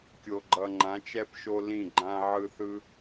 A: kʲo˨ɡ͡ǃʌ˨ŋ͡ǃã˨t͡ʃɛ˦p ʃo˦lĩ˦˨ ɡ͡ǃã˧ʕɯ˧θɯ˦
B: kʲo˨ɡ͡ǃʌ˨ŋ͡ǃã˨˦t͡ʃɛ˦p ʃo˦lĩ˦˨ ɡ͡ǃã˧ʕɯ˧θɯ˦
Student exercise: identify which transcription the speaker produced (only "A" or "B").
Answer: B